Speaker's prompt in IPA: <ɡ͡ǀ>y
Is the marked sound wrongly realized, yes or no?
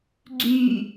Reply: no